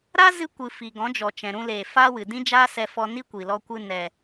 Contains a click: no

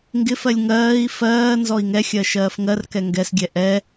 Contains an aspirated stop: no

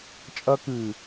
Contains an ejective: yes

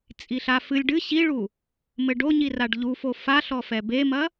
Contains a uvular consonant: no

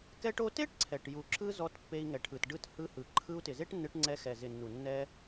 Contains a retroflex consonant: yes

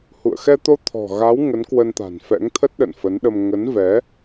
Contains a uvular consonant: no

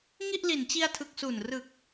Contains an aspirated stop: yes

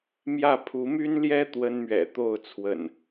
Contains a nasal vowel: no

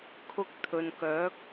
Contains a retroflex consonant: no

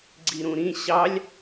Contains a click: yes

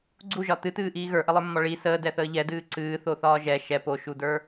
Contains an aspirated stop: no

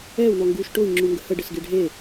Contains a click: yes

